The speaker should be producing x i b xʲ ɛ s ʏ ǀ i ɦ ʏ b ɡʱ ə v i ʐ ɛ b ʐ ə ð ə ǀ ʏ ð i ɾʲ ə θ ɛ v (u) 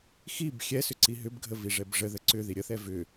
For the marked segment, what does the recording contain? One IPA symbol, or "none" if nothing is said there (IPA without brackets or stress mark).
ʏ